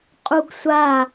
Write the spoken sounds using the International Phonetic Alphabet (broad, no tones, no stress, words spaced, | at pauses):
qʼuɡsʷa